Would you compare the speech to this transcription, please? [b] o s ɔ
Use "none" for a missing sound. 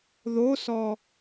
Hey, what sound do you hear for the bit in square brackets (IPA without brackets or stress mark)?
ð